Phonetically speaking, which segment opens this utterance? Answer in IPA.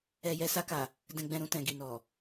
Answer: ɛ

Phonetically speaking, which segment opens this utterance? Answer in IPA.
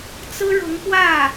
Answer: t͡s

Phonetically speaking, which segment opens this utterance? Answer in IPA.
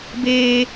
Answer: b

